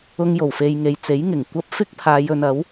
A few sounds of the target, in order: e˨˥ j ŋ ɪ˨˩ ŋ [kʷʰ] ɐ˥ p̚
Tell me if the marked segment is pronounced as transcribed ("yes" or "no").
no